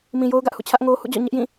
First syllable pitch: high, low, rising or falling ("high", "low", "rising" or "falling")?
low